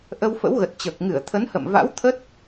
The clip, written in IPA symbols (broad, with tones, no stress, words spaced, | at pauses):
ʔə˧wfə̰˧˥wɣə˨˩t̚t͡ɕəː˨˩k̚ ŋɨ˧˩ə̯ t̪ʰə˨˦nhə̰˧˨m va̰˧˥wt̪ʰə˦˥t̚